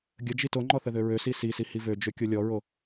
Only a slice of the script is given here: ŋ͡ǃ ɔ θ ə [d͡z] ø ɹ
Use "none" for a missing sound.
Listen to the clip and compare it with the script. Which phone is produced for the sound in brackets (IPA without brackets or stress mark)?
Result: ð